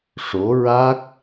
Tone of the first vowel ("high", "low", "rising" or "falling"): rising